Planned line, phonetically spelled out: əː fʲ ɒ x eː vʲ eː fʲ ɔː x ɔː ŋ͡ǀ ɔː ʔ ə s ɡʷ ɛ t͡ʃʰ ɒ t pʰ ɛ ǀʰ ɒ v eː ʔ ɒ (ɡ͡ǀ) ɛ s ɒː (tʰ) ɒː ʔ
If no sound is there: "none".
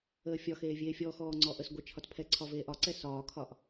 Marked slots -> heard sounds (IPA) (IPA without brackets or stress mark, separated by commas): ǀ, kʰ